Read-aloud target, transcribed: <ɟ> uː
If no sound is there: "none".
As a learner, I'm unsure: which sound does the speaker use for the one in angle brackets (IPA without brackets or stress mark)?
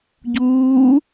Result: ɟ